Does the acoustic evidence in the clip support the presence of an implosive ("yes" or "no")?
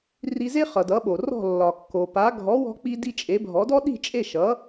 yes